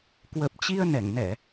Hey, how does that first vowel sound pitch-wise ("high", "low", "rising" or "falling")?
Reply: low